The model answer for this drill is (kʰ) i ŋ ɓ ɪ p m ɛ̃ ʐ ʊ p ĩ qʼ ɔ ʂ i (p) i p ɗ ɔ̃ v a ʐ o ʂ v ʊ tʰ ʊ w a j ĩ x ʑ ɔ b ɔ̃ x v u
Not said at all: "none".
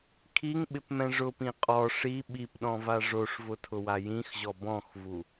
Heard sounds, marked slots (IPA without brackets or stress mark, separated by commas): kʰ, ɓ